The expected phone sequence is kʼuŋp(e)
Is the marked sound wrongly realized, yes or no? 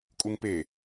no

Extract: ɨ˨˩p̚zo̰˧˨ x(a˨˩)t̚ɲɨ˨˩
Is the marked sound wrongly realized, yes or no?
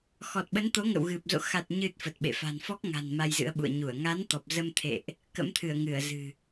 no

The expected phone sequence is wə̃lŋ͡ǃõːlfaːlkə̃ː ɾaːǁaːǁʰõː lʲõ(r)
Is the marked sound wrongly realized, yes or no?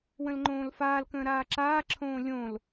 yes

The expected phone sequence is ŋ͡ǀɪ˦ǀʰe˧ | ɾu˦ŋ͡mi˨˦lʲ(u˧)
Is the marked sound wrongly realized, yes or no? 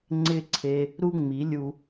no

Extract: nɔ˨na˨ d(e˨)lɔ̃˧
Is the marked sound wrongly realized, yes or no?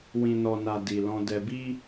yes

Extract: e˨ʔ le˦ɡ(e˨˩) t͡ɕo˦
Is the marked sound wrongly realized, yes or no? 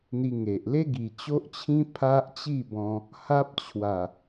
yes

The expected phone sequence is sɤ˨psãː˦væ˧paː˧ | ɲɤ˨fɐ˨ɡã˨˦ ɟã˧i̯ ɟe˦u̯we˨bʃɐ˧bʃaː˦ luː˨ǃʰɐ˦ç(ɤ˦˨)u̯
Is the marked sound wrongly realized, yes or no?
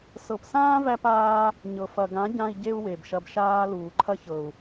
yes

